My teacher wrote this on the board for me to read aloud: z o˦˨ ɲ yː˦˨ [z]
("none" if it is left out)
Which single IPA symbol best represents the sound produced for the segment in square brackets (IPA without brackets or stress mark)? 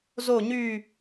none